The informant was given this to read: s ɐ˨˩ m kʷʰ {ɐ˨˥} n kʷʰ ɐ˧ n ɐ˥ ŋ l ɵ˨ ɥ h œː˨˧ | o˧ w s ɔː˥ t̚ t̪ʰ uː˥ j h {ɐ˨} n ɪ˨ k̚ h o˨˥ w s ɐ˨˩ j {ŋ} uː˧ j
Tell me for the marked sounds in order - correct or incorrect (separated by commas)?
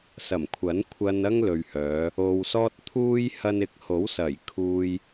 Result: correct, incorrect, incorrect